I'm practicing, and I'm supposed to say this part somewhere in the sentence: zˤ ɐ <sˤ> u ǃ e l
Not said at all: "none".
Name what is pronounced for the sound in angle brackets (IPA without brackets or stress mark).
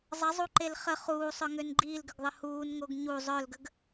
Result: zˤ